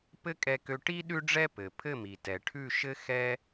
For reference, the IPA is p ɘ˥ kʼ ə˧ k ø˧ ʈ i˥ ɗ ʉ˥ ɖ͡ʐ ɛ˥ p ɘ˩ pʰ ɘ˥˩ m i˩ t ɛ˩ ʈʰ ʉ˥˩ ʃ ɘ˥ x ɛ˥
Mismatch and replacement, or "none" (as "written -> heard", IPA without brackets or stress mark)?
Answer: ə˧ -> ɛ˧